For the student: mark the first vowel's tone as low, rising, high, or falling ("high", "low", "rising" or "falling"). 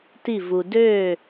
falling